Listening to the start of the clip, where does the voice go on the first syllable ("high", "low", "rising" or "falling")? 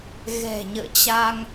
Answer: low